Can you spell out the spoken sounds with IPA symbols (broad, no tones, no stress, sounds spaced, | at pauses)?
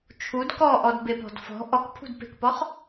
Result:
t͡ʃʰ u d k ɔ ʔ ɔ d b e p ɔ̤ d f ɔ̤ ʔ ɔ k pʰ ṳ d p e̤ k p ɔ χ